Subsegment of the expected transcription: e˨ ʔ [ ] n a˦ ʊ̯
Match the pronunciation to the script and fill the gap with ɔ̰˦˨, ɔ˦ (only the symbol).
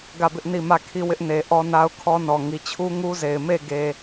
ɔ˦